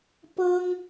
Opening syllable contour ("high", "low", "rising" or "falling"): high